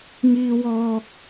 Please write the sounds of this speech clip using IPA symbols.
ŋ iː˥ w ɔː˥ k̚

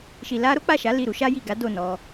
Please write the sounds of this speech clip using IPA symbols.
ʃ i˨ l a˧ ɾ o˦ k͡p a˦˨ ʃ a˨˦ l i˦˨ ɾ u˨˦ ʃ a˦ j i˦˨ ɡ a˨˦ d o˦˨ n ɔ˧

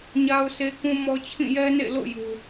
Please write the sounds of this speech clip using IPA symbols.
ɲ a˦ ʊ̯ sʰ e˦ k ũ˦ m ɔ˦ t͡ɕʰ ĩ˦˨ j ɛ˦ n ḛ˦˨ l o̰˦˨ j u˨

